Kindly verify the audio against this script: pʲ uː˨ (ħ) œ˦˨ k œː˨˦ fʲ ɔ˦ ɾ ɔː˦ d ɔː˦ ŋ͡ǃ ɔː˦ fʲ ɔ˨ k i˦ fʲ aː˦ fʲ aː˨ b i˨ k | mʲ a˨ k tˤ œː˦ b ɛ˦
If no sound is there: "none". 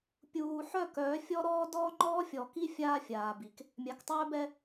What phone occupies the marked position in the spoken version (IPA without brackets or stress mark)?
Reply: ħ